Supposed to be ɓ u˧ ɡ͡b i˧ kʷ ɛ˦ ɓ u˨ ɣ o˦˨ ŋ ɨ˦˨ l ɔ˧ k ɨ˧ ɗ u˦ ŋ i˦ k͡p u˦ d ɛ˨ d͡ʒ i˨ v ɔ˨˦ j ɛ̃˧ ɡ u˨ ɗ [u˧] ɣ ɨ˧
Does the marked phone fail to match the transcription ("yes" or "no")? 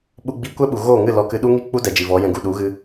yes